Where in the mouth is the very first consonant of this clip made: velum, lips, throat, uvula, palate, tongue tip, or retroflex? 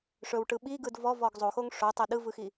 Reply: retroflex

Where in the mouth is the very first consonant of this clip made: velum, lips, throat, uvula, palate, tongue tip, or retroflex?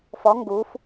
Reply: lips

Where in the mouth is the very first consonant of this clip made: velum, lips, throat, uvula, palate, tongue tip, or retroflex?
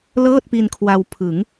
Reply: tongue tip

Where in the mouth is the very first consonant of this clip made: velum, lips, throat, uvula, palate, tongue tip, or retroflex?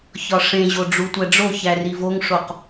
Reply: palate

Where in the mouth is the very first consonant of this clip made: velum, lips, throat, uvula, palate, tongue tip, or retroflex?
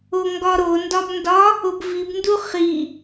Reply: velum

